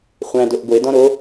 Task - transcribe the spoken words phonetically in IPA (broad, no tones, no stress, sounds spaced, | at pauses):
χʷ æ̃ d o ʔ ɡʷ e d ɔ̃ ɾ o